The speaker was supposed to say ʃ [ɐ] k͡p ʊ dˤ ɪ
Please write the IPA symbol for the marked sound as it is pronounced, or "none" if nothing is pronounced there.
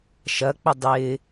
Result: ɐ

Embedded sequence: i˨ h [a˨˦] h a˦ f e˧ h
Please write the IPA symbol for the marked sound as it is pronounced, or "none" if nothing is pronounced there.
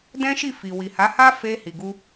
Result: a˨˦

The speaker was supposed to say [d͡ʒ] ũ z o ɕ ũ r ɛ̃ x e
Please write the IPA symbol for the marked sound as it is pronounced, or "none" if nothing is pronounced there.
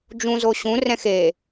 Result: d͡ʒ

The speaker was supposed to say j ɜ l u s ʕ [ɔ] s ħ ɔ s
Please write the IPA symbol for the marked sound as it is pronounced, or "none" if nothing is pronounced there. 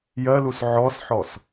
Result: ɔ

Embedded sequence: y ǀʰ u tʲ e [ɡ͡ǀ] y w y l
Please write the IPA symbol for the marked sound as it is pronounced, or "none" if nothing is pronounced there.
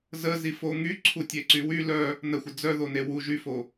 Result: ǀ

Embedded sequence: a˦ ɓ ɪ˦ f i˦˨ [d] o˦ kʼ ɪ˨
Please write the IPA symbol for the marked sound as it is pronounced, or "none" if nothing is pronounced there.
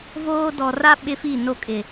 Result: n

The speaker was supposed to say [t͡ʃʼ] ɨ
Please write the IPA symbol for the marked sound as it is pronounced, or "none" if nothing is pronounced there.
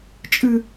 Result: t͡ʃʼ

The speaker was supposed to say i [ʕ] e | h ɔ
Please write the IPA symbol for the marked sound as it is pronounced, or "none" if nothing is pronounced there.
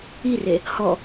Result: r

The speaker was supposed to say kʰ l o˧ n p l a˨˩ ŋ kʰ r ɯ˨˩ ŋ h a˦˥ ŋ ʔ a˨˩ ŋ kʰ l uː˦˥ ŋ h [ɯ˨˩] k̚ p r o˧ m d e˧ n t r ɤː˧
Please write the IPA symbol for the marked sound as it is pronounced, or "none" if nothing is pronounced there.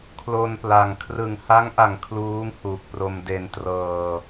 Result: u˨˩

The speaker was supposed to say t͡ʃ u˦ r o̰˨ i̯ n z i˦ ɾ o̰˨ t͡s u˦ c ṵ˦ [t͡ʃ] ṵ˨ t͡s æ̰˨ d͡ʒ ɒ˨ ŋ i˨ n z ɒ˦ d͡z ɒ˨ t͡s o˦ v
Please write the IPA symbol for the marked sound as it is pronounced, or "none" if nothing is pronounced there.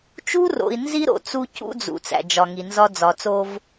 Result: d͡z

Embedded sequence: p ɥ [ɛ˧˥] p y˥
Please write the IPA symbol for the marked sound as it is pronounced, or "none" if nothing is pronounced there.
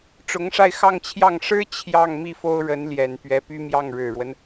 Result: ɛ˧˥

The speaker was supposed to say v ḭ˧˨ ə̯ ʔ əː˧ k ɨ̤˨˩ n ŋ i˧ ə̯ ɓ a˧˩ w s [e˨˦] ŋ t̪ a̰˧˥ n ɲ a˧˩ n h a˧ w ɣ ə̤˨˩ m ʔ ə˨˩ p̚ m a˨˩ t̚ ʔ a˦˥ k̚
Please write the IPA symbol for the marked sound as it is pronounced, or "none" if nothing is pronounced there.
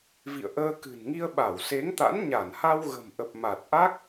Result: e˨˦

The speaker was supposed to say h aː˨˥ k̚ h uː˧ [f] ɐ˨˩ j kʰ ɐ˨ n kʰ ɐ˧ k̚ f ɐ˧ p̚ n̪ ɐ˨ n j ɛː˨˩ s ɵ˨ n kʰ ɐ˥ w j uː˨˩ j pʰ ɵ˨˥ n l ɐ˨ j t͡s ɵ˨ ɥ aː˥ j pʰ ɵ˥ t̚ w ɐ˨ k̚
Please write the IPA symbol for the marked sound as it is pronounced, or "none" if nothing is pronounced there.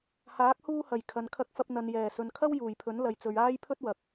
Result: h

